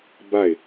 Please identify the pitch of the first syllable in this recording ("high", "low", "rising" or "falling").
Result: falling